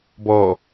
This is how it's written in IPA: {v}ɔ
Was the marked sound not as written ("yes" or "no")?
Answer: yes